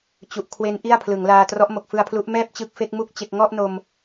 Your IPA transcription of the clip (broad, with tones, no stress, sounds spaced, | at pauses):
t͡ɕ u˨˩ ʔ kʰ w e˦˥ n ʔ i˥˩ a̯ pʰ l ɯ˩˦ ŋ l aː˧ t r ɔ˦˥ ʔ m o˨˩ k̚ f ɯ˧ a̯ pʰ l u˦˥ ʔ m ɛː˥˩ p̚ t͡ɕ ɯ˦˥ k̚ f e˦˥ k̚ m u˥˩ k̚ t͡ɕ e˥˩ k̚ ŋ ɔ˥˩ ʔ n o˧ m